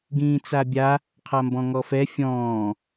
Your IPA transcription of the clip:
ɡ ĩː t͡s a bʲ a | qʰ a m b ɔ̃ ŋ ɔ f ɛ fʲ ɔ̃ː

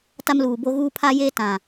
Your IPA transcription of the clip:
t a˦ m l uː˨ b o˦ ɣ uː˦ pʰ a˦ j eː˦ t ã˨

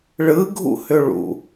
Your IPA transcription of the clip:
ɭ ɯ ɡʱ ṵ h ʏ ɭ ṵ

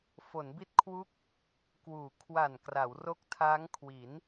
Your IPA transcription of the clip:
f o˩˦ n b i˦˥ t̚ kʰ w u˦˥ k̚ | k w uː˨˩ kʰ w a˨˩ n k r a˩˦ w r o˦˥ k̚ tʰ aː˦˥ ŋ kʰ w i˩˦ n

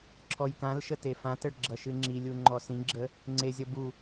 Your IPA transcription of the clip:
ǁʰ ɔ j k ã l ʃ ə t e f ã t ə ɭ ɡ͡ǁ ʌ ʃ ɨ ŋ͡ǁ i lʲ u ŋ͡ǃ ɔ s ĩ ɡ͡ǁ ə | ŋ͡ǀ e zʲ ʌ b u

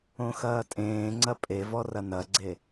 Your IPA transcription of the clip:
õ x ɐː tʼ ẽː ŋ͡ǀ ɐ pʼ e v ɔ r ɐ n ɐ ɡ͡ǀ e

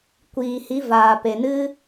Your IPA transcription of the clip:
kʷ iː˨ h i˨˦ v aː˨ p e˨ n ɨ˦

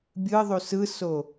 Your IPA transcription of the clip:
bʲ ɯ ðˤ u s ɯ s o

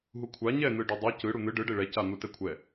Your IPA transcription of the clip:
ɦ u kʷʰ a ɲ ɛ n̪ ɯ ɖ ɔ dˤ i c ɯ ɽ u n̪ ɯ ɖ ɯ ɖ e ɭ ɛ c a n̪ u t ɛ kʷʰ ɛ

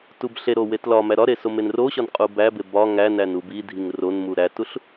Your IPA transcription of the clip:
t u b ɬ e ɾ o w e t l ɒ m æ ɾ ɒ ɾ e s o m e n r o ɕ ɒ n qʼ u b æ b e b ɒ ŋ æ n æ n u b i dʱ i ŋ r o n m u ɾ æ t u ɬ

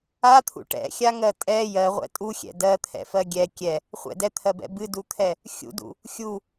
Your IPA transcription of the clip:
a t̪ʰ ṵ ʈ ɛ̰ xʲ a ŋ ɜ tʼ ɛ j ɜ ʁʷ ɛ̰ tʼ u xʲ ɛ̰ d ɜ t̪ʰ ɛ̰ f ɜ ɡʲ ɛ kʲ ɛ | χʷ ɛ̰ d ɛ t̪ʰ ɜ b ɛ̰ b ɨ d u t̪ʰ ɛ | xʲ ṵ d ṵ | xʲ u

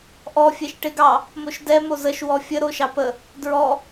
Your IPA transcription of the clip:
ʔ ɔ fʲ ɛ ʃ ʈ e ɡ ɑ | m o ʃ d ɛ m o z ə ʃ w ɔ fʲ ə ɾ o ʃ ɑ p ə | d ɹ ɔ

